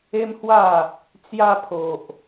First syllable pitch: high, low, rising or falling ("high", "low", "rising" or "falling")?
high